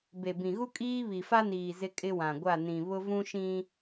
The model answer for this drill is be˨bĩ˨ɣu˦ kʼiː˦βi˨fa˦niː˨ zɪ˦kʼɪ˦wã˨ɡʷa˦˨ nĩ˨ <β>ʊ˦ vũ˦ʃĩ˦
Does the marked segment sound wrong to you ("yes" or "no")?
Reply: no